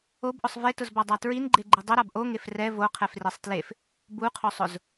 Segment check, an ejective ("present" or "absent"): absent